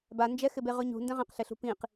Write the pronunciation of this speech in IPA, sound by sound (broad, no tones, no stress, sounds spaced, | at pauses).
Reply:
b a n d͡ʒ ɛ x ɪ b e ʁ ʊ ɲ ṳ n d ɛ̃ ʁ ɛ̃ q ɬ ɪ ɬ ṳ p ĩ q